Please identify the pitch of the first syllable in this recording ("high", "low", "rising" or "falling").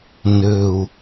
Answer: low